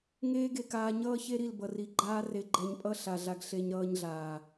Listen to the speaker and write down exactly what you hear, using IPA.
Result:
ŋ eː˦ ɡ e˧ k aː˧ ɲ ʌː˦ ç e˦ ɾ i˦˨ l b ʌ˨ r i˨˦ ɡ͡ǃ aː˦ r e˧ ɡ͡ǃ ɛ˧ ɲ pʼ ʌ˦ ɬ a˨ ɮ a˧ ɡ ɬ e˦ ɲ ɾ ʌː˦ ɲ ɮ aː˨

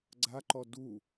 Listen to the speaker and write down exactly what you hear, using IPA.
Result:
ɡ͡ǀ a ǃ ɔ d u

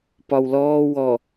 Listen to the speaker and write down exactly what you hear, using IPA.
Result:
p ɒ w l ɔː w ɔ

